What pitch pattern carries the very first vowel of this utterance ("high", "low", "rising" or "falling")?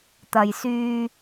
low